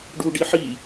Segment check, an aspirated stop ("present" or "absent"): absent